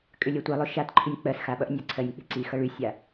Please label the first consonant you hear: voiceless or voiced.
voiceless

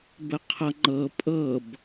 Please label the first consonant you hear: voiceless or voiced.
voiced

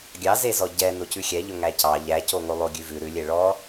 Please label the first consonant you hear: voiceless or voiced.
voiced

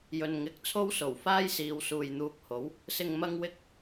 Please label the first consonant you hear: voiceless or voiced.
voiced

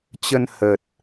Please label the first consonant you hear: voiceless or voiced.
voiceless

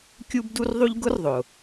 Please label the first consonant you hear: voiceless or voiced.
voiceless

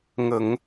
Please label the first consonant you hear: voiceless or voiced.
voiced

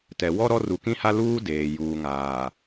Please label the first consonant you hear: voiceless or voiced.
voiceless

